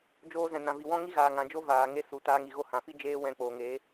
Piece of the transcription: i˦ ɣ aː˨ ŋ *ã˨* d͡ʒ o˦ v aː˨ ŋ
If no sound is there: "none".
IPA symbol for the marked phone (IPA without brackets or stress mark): ã˨